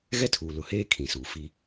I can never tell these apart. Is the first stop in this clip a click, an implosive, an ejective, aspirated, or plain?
aspirated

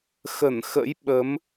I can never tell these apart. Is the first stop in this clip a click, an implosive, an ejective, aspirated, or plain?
implosive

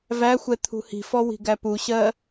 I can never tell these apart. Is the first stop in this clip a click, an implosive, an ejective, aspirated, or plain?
aspirated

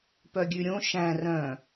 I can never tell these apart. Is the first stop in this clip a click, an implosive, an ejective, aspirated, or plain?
plain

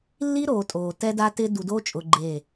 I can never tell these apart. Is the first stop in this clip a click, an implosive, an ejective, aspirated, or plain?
ejective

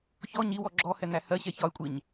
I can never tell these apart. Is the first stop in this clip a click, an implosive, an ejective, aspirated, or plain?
click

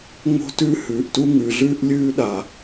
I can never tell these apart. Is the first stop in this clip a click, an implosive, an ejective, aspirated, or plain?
plain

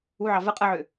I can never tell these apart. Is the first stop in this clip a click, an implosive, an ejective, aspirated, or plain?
ejective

